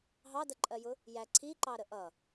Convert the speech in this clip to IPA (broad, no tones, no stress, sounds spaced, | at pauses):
ɦ ɑ d ɜ ǃʼ ɜ j ʊ | j æ ǀʰ i ǃ ɑ ɾ ə ʔ ʌ